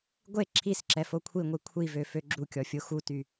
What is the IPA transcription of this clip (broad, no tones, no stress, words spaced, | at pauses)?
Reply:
ɡʷe ǁʰisǁɛ fokʷʰiŋʷi kʷʰivø føɡ͡ǁukʲɔ fʲoxuty